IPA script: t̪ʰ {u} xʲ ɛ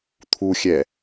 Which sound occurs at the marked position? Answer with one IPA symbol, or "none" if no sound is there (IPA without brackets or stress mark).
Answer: u